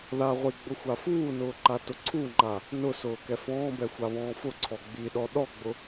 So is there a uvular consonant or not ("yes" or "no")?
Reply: yes